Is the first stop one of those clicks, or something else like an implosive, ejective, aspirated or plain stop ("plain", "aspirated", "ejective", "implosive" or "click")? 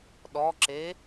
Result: implosive